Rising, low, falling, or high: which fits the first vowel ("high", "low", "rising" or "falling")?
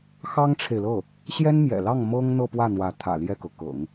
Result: high